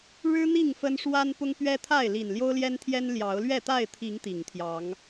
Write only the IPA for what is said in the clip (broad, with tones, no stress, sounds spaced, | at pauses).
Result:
ɻ ɻ̩˦ n̪ i˥˨ ŋ f ə˦ n ʂ w a˦ n p ʊ˦ ŋ p ɥ ɛ˦ t̪ʰ a˥˨ ɪ̯ l i˨˩ n l j o˦ ʊ̯ l j ɛ˦ n t̪ʰ j ɛ˦ n l j ɑ˨˦ ʊ̯ l ɥ ɛ˥˨ t̪ a˥˨ ɪ̯ t̪ʰ i˨˦ ŋ t̪ i˨˩ ŋ t̪ʰ j ɑ˨˦ ŋ